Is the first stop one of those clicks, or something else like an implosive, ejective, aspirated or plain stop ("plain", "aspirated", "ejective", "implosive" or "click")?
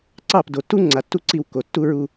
click